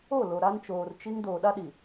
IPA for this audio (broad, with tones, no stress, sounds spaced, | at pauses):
o˦˨ l o˨ ɾ a˦ n t͡ʃ oː˨ r t͡ʃ i˦ ŋ d oː˨ ɗ a˦ ɗ i˨